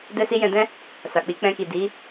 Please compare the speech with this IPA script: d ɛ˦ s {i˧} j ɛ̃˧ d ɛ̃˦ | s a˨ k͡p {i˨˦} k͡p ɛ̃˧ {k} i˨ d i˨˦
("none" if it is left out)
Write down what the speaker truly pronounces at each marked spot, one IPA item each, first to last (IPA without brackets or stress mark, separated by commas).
i˦, i˨˦, k